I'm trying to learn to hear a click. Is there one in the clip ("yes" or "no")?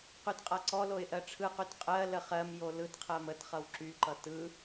yes